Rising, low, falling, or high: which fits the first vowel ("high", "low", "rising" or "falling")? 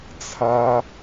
high